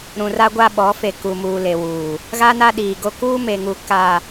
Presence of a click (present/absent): absent